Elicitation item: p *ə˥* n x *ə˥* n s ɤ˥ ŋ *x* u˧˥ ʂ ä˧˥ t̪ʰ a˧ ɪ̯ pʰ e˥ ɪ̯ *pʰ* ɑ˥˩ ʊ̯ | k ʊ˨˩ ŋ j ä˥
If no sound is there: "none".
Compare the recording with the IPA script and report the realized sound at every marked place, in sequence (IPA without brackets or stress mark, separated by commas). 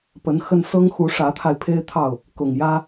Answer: ə˧˥, ə˥, x, t̪ʰ